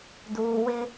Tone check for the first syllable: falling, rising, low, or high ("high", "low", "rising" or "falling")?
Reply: low